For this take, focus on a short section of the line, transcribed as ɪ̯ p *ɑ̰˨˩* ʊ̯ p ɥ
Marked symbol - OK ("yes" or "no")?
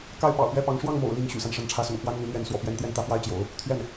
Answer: yes